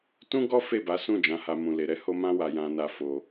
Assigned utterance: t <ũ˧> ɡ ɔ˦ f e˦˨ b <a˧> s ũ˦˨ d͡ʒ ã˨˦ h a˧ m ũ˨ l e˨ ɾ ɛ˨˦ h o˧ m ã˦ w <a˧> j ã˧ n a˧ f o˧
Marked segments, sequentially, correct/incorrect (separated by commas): incorrect, incorrect, correct